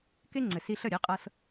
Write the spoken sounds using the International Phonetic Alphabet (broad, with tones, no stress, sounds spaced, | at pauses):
k e˥ ŋ͡ǀ ɘ˩ s i˧ ɬ ə˥˩ ɾʲ e˩˥ qʼ ɤ˧ s